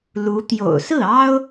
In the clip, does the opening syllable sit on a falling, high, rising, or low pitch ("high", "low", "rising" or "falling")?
rising